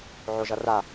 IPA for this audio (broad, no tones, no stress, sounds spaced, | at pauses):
ʕ o ʒ ʌ r a